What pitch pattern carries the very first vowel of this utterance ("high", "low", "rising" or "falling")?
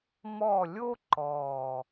falling